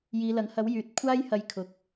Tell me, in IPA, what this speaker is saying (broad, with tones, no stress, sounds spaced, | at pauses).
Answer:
j iː˨˧ l ɐ˨˥ ŋ h ɐ˨˥ w j yː˨ t̚ kʷʰ aː˥ j h ɐ˧ j kʰ ʊ˨ k̚